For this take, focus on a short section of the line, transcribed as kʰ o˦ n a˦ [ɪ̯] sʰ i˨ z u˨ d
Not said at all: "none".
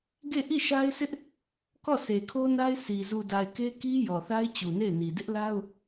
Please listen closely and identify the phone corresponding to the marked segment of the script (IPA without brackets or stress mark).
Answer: ɪ̯